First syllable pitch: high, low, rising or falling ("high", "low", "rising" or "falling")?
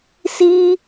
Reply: high